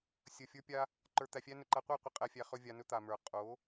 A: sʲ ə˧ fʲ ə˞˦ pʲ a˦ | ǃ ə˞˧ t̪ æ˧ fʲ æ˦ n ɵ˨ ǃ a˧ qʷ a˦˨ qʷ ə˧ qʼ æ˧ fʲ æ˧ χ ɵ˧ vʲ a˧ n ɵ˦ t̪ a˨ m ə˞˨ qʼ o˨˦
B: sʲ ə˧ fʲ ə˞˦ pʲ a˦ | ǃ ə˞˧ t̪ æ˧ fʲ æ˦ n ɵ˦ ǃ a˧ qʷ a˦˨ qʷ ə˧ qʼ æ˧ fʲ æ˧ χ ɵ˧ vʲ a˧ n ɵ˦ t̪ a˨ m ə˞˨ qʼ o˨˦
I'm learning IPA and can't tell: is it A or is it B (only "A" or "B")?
A